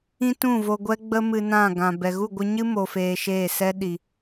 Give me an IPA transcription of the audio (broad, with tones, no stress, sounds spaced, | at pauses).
ĩ˦ t ũ˦˨ v o˧ ɡʷ ɛ˦ ɡ͡b ə˦ m ɨ˧ n ã˦˨ ɡ ã˨ b ɛ˨ ɣ u˦˨ ɡʷ ɨ˧ ɲ ɨ˦ m o˧ f eː˧ ʃ eː˦˨ s ɛ˦ ɗ i˨